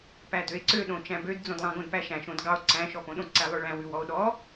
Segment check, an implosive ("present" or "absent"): present